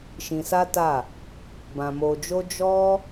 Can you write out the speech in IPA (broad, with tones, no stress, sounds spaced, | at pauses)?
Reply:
ʃ ĩ˧ s a˦ t a˦˨ | b ã˧ m o˧ d͡ʒ o˦ d͡ʒ ɔ˦